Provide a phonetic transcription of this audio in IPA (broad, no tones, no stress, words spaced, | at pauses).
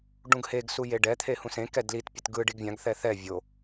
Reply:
ɖũɡheɡsu jeɖɛt̪ʰe hũsẽkɛ dlitpʲɯt ɡɯ ɖiɡvʲãɡθɛ θɛ vʲo